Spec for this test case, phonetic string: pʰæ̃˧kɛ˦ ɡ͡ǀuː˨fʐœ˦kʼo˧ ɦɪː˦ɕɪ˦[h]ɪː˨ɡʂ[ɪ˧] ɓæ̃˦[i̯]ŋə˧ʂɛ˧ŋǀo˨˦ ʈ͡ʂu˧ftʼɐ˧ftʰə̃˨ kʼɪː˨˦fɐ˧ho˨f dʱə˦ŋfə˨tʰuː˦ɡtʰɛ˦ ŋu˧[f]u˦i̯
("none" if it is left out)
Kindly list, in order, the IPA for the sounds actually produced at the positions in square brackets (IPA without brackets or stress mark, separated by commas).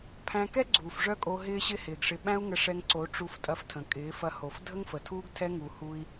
h, ɪ˧, u̯, h